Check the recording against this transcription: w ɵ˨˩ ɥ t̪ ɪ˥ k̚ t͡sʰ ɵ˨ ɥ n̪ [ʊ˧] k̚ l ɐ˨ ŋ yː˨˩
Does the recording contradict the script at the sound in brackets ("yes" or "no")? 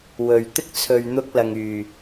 no